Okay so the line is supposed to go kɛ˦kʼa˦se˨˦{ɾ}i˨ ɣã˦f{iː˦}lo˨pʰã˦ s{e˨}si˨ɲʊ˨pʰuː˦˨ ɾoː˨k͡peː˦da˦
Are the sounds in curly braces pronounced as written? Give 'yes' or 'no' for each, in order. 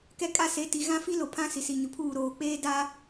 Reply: no, no, no

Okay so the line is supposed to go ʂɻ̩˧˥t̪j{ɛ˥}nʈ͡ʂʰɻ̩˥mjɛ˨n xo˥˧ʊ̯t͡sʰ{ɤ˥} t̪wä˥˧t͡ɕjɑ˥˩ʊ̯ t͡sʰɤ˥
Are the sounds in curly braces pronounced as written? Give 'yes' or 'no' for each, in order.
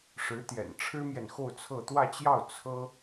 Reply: no, no

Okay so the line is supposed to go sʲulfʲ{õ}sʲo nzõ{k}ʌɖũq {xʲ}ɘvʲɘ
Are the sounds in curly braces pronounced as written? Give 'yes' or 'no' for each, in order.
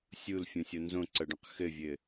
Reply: no, no, no

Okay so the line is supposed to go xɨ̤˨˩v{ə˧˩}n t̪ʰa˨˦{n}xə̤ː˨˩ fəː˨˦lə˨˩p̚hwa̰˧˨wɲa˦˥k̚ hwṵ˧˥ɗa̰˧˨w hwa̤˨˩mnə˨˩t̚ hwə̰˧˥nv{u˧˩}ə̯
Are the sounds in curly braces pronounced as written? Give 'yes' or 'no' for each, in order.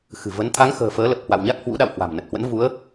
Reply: no, no, no

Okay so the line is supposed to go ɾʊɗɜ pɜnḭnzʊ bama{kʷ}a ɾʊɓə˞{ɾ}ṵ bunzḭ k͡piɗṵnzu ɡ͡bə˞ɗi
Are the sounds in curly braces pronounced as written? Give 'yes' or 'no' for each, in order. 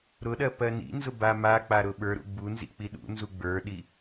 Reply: no, yes

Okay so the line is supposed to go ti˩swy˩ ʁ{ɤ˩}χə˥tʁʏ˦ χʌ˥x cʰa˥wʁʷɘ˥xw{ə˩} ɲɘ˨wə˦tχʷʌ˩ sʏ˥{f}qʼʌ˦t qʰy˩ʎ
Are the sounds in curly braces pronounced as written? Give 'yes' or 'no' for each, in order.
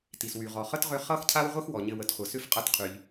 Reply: no, no, yes

